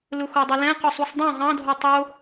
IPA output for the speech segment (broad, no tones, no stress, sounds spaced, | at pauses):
l ʊ x o dˤ ʊ l ɛ̃ q ʊ sˤ u sˤ dˤ õ ʁ ɑ̃ dʱ o tˤ o